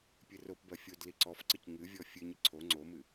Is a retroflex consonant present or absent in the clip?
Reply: absent